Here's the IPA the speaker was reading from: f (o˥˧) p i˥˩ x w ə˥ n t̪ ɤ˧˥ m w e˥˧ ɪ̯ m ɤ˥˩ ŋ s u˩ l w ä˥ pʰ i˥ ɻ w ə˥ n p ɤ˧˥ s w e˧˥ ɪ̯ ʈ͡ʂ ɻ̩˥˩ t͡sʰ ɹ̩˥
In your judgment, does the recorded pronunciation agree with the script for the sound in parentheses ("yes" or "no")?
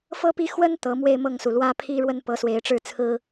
no